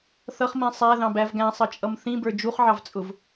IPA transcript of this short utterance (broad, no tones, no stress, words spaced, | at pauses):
θʌχmĩ sˤæðɑ̃bæv ɡæ̃sˤʌt͡ʃʼʌm θĩbə˞ d͡ʒuχʕɑvt͡sʼʊv